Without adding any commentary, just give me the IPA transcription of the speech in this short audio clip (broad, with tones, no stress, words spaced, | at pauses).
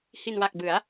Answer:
hi˨˩nwa˨˩k̚bɯ˩˦a̯